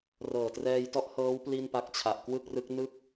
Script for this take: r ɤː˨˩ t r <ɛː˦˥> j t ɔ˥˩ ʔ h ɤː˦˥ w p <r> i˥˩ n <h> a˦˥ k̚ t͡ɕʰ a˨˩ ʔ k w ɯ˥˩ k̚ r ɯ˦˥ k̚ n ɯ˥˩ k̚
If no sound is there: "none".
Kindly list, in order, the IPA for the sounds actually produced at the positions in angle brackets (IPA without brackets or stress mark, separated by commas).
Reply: ɛː˧, l, p